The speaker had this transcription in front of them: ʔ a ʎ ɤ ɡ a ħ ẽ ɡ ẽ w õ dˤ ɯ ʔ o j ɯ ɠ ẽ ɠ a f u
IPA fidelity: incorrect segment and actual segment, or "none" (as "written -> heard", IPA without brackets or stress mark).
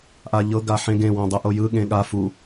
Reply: none